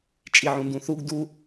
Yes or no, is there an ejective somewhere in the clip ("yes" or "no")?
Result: yes